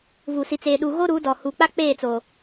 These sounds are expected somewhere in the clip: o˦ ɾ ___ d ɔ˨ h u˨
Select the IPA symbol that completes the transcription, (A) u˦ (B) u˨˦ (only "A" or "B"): B